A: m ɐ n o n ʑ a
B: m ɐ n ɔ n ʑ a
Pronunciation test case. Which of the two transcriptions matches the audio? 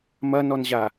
B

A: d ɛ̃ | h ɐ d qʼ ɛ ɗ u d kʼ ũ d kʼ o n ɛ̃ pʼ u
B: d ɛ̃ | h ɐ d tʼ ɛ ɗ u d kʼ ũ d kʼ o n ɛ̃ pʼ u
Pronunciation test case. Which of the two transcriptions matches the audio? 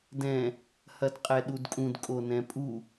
A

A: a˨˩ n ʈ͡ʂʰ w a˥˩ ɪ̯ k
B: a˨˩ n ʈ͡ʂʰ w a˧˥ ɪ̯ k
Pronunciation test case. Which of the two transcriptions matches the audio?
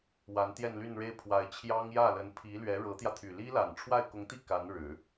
A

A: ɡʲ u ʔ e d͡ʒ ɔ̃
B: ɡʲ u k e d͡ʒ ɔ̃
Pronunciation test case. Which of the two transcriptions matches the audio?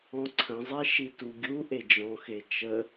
A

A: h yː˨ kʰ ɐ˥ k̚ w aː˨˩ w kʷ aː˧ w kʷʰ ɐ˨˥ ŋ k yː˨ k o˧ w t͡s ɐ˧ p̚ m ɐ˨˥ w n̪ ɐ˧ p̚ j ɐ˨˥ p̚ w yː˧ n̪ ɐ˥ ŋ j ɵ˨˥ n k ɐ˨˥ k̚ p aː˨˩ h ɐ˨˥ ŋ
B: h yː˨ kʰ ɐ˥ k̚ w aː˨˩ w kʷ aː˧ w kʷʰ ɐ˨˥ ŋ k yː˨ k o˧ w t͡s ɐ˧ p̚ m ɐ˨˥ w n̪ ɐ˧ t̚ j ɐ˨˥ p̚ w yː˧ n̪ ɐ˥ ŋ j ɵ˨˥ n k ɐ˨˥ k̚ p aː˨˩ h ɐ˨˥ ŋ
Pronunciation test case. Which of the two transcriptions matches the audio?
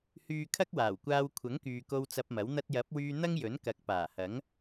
B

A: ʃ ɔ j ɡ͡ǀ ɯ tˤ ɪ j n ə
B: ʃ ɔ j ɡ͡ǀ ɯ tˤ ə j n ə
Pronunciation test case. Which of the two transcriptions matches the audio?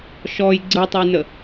B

